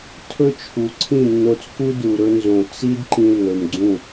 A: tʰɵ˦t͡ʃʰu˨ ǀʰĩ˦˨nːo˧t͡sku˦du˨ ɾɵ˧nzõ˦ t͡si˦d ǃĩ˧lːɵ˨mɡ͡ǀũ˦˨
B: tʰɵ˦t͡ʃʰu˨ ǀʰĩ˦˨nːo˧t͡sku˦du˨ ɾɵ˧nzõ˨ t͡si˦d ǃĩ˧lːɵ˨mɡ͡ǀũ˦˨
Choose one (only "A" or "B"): B